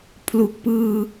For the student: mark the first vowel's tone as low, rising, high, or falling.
low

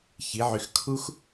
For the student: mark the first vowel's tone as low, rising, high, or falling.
rising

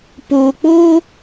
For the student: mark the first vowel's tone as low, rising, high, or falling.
low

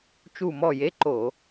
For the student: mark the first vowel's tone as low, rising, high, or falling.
falling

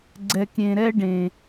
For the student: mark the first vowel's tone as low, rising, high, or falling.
low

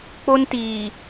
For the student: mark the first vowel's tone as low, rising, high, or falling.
high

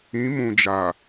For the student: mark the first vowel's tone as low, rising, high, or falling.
rising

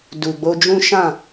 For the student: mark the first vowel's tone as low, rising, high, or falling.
low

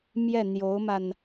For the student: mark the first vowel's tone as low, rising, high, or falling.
falling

